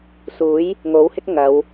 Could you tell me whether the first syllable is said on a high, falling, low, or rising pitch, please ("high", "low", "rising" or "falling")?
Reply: rising